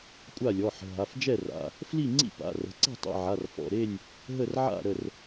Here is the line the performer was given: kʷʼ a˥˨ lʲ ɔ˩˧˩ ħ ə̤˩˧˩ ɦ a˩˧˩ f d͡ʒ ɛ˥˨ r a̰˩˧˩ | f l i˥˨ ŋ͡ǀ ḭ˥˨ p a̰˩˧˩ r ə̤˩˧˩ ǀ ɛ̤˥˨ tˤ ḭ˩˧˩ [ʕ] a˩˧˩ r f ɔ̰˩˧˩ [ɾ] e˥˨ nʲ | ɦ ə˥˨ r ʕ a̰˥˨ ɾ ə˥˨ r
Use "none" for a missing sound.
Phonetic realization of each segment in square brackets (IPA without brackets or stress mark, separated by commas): ʕ, ɾ